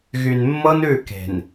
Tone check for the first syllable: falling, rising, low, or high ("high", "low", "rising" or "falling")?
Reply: low